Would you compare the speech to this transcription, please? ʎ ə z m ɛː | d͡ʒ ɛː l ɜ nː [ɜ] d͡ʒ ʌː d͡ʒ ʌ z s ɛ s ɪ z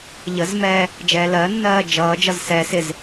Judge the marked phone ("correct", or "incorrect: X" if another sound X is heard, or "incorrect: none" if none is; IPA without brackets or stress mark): incorrect: ɜː